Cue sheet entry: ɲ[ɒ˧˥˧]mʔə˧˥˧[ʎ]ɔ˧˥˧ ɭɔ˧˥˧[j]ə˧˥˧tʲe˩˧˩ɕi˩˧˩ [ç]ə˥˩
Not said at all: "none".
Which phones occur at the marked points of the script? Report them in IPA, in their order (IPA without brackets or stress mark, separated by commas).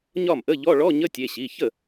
ɒ˥˩, ʎ, ɲ, ç